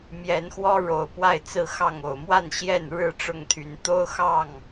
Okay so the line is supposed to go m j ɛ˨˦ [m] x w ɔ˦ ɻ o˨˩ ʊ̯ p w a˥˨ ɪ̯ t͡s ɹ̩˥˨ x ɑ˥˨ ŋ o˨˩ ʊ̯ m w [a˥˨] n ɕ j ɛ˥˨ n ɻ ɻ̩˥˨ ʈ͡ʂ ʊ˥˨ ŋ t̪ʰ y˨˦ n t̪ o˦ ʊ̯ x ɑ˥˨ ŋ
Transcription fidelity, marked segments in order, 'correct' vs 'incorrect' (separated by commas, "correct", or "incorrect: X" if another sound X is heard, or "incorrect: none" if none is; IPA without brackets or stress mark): incorrect: n, correct